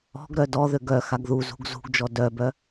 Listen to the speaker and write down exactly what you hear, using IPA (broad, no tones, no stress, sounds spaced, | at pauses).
ɔ̤ ɡ ɾ œ d ɔ ð ø ɡ œ x a ɡ ð u z ṳ ɡ z ṳ ɡ d͡ʒ ɔ d œ b œ